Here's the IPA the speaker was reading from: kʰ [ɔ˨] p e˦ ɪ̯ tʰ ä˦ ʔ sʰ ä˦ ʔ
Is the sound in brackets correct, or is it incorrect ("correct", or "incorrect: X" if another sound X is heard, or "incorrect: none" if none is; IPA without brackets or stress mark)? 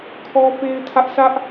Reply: incorrect: ɔ˦